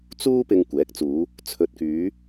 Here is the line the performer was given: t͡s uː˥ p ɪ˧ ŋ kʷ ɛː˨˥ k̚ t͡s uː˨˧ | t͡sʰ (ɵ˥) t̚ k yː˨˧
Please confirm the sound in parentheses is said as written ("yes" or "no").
no